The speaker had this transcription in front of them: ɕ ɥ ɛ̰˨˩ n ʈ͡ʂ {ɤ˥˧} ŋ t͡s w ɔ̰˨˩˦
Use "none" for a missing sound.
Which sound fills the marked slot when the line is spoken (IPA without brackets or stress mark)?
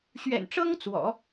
ɤ˥